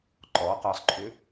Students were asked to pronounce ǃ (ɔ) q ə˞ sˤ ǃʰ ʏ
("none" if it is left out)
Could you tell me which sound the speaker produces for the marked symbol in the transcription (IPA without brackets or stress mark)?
ɔ